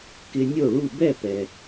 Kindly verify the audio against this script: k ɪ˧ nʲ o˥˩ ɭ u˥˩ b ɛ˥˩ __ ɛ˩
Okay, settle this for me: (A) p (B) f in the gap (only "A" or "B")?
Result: A